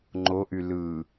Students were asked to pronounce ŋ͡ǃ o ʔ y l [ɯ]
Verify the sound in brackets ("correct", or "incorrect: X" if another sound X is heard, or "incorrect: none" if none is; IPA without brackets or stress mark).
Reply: correct